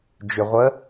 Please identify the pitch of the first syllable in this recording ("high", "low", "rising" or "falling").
low